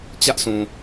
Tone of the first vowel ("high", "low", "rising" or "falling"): high